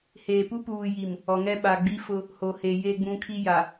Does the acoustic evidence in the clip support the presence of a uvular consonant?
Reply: no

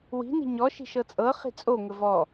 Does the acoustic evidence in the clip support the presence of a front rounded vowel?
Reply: no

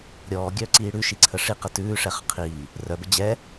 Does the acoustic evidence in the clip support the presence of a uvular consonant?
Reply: yes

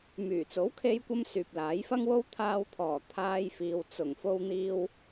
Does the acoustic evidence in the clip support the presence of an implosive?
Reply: no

